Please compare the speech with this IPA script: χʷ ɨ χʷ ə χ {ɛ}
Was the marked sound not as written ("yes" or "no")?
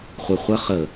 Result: yes